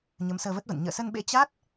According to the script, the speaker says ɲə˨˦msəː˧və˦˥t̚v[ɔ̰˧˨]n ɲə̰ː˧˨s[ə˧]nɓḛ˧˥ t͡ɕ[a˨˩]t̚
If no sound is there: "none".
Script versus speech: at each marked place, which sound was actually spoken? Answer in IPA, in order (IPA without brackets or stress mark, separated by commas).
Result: ə̰˧˨, ə˧, a˦˥